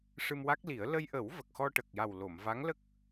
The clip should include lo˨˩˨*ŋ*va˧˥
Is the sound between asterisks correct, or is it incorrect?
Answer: incorrect